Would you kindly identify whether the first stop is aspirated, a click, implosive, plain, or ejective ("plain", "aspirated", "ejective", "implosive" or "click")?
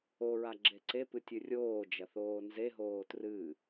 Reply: click